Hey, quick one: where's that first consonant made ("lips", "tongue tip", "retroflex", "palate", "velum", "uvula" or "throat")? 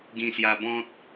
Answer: velum